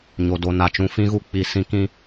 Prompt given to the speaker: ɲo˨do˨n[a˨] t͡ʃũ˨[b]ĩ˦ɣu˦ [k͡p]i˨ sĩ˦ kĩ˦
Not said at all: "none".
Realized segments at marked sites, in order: a˨, f, k͡p

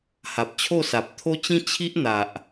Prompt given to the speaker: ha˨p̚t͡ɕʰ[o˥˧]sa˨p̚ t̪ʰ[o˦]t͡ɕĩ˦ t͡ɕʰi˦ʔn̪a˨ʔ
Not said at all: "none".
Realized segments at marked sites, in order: o˥˧, o˦

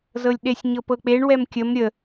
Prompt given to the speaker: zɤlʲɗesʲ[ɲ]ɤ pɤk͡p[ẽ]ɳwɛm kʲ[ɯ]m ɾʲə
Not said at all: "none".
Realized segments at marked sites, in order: ɲ, e, ə

